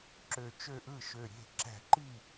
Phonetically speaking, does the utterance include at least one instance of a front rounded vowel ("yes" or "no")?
yes